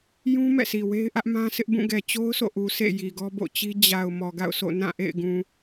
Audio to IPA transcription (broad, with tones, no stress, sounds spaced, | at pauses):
j ũ˦ m ɛ̰˦˨ s i˨ w e˦ ɪ̯ ʔ ä˦ ʔ m ã˦ sʰ ɪ˦ ʔ b ũ˦˨ ɡ ɛ˨ t͡ɕ o˦ ʊ̯ sʰ o̰˦˨ ʔ u˨ s ḛ˦˨ j i˨ ɡ ɔ˦ b o̰˦˨ t͡ɕ i˦ d͡ʑ a˨ ʊ̯ m ɔ˨ ɡ a̰˦˨ ʊ̯ sʰ o̰˦˨ n ã˦˨ ʔ ḛ˦˨ ɪ̯ ɡ ũ˨